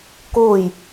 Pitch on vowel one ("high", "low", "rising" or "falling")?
falling